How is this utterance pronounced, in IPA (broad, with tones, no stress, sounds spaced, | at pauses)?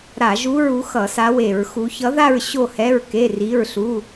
ɾ a˧˩˧ ʒ u˧˥ ɹ u˧˥ x ʌ˧˩˧ s a˧˥ w e˧˩˧ ɹ x u˧˥ ç ʌ˧˥ ð a˥˧ ɹ ɕ o˥˧ h ɛ˧˥˧ ɹ k e˧˥˧ r i˧˥˧ ɹ ɬ u˧˥˧